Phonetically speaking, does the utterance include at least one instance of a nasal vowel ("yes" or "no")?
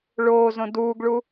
yes